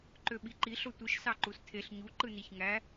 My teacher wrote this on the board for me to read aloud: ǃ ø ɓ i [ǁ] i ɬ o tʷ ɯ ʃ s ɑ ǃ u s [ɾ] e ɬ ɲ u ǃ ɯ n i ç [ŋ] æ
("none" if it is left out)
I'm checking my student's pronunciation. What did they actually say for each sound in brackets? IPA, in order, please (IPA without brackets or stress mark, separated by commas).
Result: ǃ, tʰ, ŋ